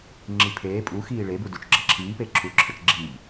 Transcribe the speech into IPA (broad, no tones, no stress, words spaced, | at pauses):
ŋ͡ǁipʰeː pʼuxiː ɭebudut͡ʃɡ͡ǁɐ ǁʰiːpe ǁʰuǁʰət͡ʃɡ͡ǁiːʎ